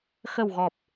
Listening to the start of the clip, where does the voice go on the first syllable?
low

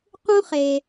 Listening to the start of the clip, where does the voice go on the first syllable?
high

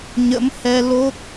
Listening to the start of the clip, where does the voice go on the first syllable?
rising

